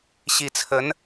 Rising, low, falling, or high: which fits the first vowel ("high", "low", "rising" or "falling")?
rising